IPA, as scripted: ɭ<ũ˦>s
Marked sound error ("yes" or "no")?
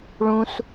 no